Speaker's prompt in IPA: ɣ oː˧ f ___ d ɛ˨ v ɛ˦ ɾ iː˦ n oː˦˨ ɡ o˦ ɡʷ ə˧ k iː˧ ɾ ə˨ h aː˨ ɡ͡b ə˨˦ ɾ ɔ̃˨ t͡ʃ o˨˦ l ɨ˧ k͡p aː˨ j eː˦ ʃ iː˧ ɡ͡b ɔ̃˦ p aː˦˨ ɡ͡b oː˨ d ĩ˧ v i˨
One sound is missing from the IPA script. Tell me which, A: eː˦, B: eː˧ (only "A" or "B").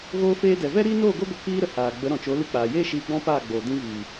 B